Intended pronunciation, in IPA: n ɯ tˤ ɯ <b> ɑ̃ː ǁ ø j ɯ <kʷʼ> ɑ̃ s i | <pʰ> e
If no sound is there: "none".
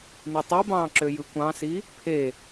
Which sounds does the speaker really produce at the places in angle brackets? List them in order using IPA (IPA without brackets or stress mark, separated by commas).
b, kʷ, pʰ